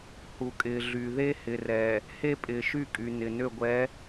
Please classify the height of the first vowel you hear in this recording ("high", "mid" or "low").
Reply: high